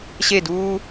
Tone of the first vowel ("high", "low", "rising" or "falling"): falling